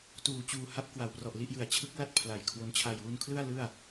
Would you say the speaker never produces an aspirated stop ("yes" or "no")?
no